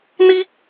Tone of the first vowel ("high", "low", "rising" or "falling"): high